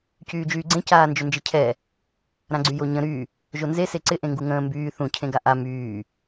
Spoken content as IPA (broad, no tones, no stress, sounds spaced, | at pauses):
c yː d͡ʒ yː ɡ͡ǀ ẽ c aː n d͡ʒ ʏ n d͡ʒ ɪ cʰ ɛ | ɾ ã ɡ͡ǀ y j o ɲ ə̃ ɾ y | ʒ o n z e s e ǀ ɪ ʔ ẽ ŋ ɡ u ŋ ə̃ː m b yː θ ũ cʰ ẽ ɡ a ʔ a m yː